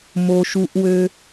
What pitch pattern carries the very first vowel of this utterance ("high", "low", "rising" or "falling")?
low